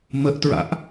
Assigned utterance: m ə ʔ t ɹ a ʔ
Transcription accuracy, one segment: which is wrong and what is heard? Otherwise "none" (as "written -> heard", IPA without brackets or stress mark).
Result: a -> a̰